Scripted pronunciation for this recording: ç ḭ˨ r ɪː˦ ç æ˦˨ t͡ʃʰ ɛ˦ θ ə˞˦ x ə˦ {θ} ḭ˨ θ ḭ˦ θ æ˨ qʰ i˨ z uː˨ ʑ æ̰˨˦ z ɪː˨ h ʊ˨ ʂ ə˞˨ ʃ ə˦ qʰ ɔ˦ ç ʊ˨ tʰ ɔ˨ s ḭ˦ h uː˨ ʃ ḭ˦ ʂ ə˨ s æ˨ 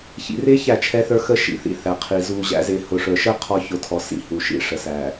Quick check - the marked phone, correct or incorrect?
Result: incorrect